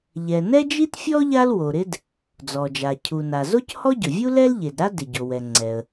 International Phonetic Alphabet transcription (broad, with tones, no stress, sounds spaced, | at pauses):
ʎ ɛ˩ n ɛ˥ d͡ʒ i˥ t fʲ ɔ˥ ʎ a˥ l w o˩ ɾ ɪ˥ d | d͡z ɔ˩ d͡ʒ a˩ cʰ u˩ n a˩ z o˥ c h ɔ˥ ɟ ʊ˩ vʲ u˥ l ɛ˥ l ʎ e˩ d ɾ a˥ d ɪ˩ ɟ o˩ w ɛ˩ ŋ͡ǀ ɛ˩ ə̯